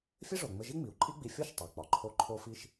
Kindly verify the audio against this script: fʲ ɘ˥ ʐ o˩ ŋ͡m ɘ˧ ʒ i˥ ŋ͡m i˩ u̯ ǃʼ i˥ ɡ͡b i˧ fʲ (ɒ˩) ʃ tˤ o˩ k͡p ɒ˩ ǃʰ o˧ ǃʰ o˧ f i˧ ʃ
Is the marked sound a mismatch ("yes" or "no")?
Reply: yes